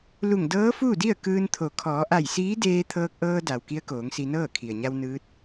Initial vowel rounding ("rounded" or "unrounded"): rounded